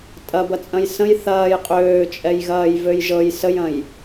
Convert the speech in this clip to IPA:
tʼ ɐ b ɐ t͡sʼ ɐ̃ j s ə̃ j θ ɐː j qʼ øː t͡ʃʼ ɛ j ɣ ɐː j v ø j ʒ ɤ j s ə j ɐ̃ j

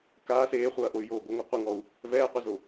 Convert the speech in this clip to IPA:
k aː s eː χʷ ɐː ʔ o y̯ j oː ɡʷ ɨ ŋʷ a qʷ ɨ ŋ ɔ u̯ | v ɛː qʷ ɛ z o

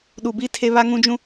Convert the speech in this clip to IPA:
ɗ u˨ b i˦ tʰ e˦ β a˦ ŋ ũ˦ d͡ʒ ũ˦

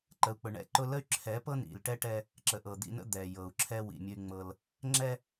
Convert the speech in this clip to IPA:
ǃ ə˨ u̯ k͡p ʊ˨ ɳ ɛ̰˦ ǃ ʊ˦ l ə˦ y̯ ǁʰ ɛ˨˦ p ɤ˦ n ḭ˨ l ʈ ɛ˦ ʈ ɛ˦ | ǁ ə˨ ʔ ɤ˨ d̪ ḭ˦ n ə̰˦ d̪ ɛ˨ j ɤ˨ u̯ ǁʰ ɛ˦ w ḭ˨ mʲ ʊ˦ y̯ ŋ͡m ɤ˦ l | ŋ͡ǁ ɛ˦

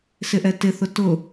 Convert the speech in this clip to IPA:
s ɪ ʔ ɛ t ɪ θ ʊ t ʊ

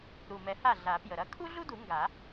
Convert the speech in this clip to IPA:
ɾ u˨˩ m ɛ˨˩˦ h a˥˩ ɮ a˨˩˦ p j ə˨˩ ɾ ɐ˥ kʰ u˥ ɮ u˥ d u˨˩˦ ŋ ɡ a˨˩˦

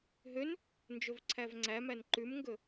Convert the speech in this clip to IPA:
ɦ ø n | n d͡ʒ ɵ v ǀʰ æ v ŋ͡ǀ æ m æ n ǃ ʉ m ŋ ɡ ɵ

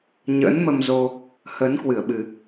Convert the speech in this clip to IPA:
ɲ ə̰ː˧˥ n m ə˧ m z o˧ | h ə˨˦ n k w ɨ˧˩ ə̯ ɓ ɨ˨˩

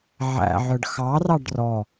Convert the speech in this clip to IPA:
ʕ æ̰ ʕ œ ɖ x ɑ r ɑ ɖ r ɔ

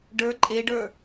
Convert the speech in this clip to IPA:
ɖ ə˞ ǃʼ e ɖ ə˞

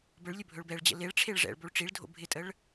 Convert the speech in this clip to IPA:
b ə ɭ lʲ ɵ bʱ ɵ ɭ b ɛ ɭ d͡ʑ ə̰ l e ɭ ʈ͡ʂʰ e ɭ ʐ ɛ̰ ɭ b o ɭ ʈ͡ʂ i ɭ dʱ o̰ bʱ ɪ tʼ ə ɭ

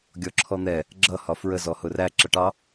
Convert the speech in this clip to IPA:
ɡʲ ɔ ǁʰ ɔ n̪ ɛ | ɡ͡ǁ ʌ h ɒ f ɹ ə z ɔ h ʊ r æ ǁ ʌ ʈ ɑ

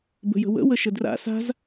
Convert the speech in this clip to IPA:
b ə̤ j ə̤ w ə̰ w ə ʃ ə d r a̰ s a̤ z

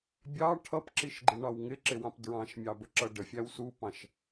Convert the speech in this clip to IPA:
bʲ ɑ ʈʰ ʌ p ǁ i ʃ ɡ͡ǃ i ɳ ɑ w ŋ ɪ ǁ ɪ w ɑ̃ p d ɹ ɑ̃ ʃ mʲ ɑ b ə ǁ ʌ ɖ ə fʲ æ w s u p ɑ̃ ʃ

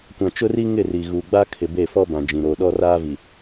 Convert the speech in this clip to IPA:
kʷ ã˨ t͡ʃ ʊ˦ r i˦ ŋ ɪ˦˨ r i˨ ɣ uː˨ ɡ͡b a˦ kʰ ɪ˨ b e˦˨ f ɔ˦ b ã˨ d͡ʒ ĩ˨ ɾ oː˨ ɗ ɔ˦ r aː˦ v i˨

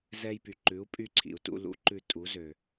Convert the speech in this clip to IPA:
z ɛ˧ j p y˩ ǃ ʉ˩˥ u̯ pʼ y˧ ǀʰ ḭ˩ u̯ t ṵ˧ l ṵ˩˥ ǃ ʉ˧ tʼ u˩˥ z ø˩

